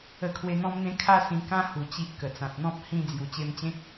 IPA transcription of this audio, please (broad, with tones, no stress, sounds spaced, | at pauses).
ə˧ kʰ w e˧ n̪ ɔ̃˦ m n̪ ẽ˦ kʰ a˧ s ĩ˧ k ã˦ h u˨˩ t͡ɕ i˨ ʔ k ə˨˩ t͡s ã˨ t̚ n̪ ɔ̃˦ p̚ h ĩ˧ d͡z j u˨˩ t͡ɕ e˧ m t͡ɕ ẽ˦ k̚